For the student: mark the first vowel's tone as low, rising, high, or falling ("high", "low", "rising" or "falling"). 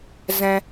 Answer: high